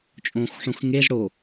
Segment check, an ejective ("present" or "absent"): present